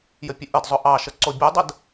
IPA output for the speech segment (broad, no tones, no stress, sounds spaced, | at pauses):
j ə pʲ ə ʔ ə d zˤ ʊ ʔ ɑ ʃ ə ǀ o bʲ ʉ dˤ ə d